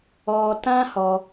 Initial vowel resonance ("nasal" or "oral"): oral